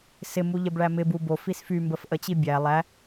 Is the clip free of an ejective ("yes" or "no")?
yes